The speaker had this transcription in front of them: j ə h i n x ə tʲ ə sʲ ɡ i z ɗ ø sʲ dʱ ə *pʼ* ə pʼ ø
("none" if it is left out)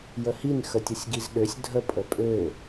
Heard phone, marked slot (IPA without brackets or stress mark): pʼ